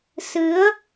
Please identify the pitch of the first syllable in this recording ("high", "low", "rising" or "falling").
rising